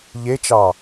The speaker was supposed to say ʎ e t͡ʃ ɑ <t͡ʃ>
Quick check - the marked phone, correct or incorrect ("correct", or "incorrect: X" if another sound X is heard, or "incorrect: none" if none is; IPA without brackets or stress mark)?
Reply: incorrect: none